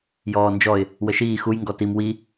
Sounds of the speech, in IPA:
j ɔː n d͡ʒ ɔ ɪ̯ | w ə ʃ iː x u j ŋ ɡ ɔ t i m w i

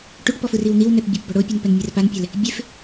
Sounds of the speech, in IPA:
ʈ u ʈ p ɔ f ɯ r i w n̪ i w n ɛ p bʲ ɔ p b ɔ ɽ o pʲ ɯ n p ɛ n mʲ ɛ r p a n pʲ ɛ l | bʲ e f

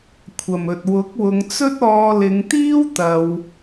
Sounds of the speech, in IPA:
kʷʰ ɐ˨˩ m ɵ˨ t̚ w ʊ˨˥ k̚ w ʊ˨˧ ŋ t͡s ɵ˥ t̚ ɔː˧ l ɪ˨˧ ŋ t̪ iː˥ w t̪ ɐ˧ w

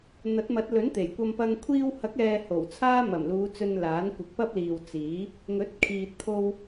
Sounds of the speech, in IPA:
n̪ ɐ˨˥ t̚ m ɐ˨˥ t̚ l ɵ˨˥ n t̪ e˨˩ j kʷ ɐ˥ m p ɐ˥ ŋ kʷʰ iː˧ w h ɐ˨˥ k̚ ɛː˨ h o˨˩ w t͡sʰ aː˥ m ɐ˨˩ m l uː˨˧ t͡s ɵ˧ n l aː˨˥ n kʷ ɪ˨˥ k̚ p ɐ˥ p̚ l iː˨ w t͡s iː˨˥ | ŋ ɵ˨˥ t̚ kʰ iː˨ t̚ t̪ʰ o˧ w

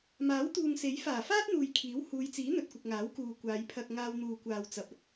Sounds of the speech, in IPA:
m aː˨˥ w t̪ uː˨ ŋ s e˨˥ j f aː˨˩ f aː˥ t̚ n̪ uː˨ j kʰ iː˨˥ w h uː˨˧ j t͡s iː˨˥ n̪ ɵ˨ t̚ kʷ ɪ˨ k̚ ŋ aː˨˥ w k uː˨ kʷ aː˨˧ j pʰ ɐ˧ k̚ ŋ aː˧ w n̪ uː˨ kʷ aː˨ w t͡s ɐ˨ p̚ ɐ˥ t̚

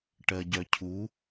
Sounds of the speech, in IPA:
ʈ ɜ ɟ œ cʰ u

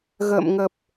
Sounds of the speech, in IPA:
ɣ ə̰ː˧˨ m ŋ ə˨˩ p̚

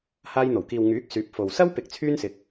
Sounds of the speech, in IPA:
h aː˧ j n̪ o˨˩ w k iː˨ w ŋ yː˨˥ k̚ s yː˨˥ p̚ f o˨ w s ɐ˥ w p ɪ˨ k̚ t͡sʰ yː˥ n s ɪ˨˥ k̚

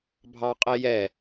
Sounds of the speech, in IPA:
bʱ ɑ qʼ e j ɛ

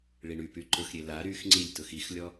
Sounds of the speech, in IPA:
ɭ i ɳ y p y ǃ ʊ x ɾʲ e l a ɾ y x ŋ͡ǀ i lʲ t ʊ x i x lʲ ɔ

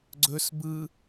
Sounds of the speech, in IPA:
ɡ͡ǀ ɵ s b ɯ

